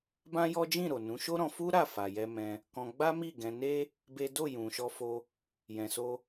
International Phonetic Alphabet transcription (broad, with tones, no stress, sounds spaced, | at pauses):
b ã˦ j ɔ˦ d͡ʒ ĩ˦˨ ɾ o˨ n ũ˨˦ ʃ o˦ ɾ ɔ̃˧ f u˦ ɾ a˦˨ f a˨ j ɛ˧ m ɛ̃˧ | k ɔ̃˧ ɡ͡b a˦ m i˦˨ ɡ ɛ̃˧ n e˦ | b e˦ d o˦˨ j ũ˨ ʃ ɔ˧ f o˧ | j ɛ̃˧ s o˦